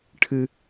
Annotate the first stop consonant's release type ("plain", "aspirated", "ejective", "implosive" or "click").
aspirated